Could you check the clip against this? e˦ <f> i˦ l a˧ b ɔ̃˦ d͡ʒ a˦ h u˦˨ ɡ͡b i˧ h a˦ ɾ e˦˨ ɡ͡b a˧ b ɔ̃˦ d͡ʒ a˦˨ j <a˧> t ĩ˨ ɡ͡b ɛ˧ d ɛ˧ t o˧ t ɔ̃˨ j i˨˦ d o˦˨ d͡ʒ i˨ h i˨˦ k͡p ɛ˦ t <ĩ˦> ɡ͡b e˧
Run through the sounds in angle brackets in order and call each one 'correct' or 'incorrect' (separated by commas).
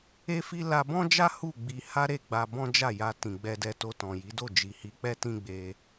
correct, correct, correct